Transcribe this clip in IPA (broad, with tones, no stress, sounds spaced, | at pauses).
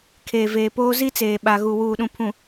kʰ eː˨ v eː˨ p oː˦ z i˦ t͡s eː˨ ɓ a˨ ɣ u˨ w uː˨ ɗ ũ˨ pʰ ũ˨